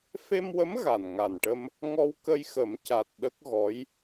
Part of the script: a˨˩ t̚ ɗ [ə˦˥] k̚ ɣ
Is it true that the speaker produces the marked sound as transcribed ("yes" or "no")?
yes